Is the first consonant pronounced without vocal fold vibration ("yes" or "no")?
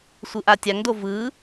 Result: yes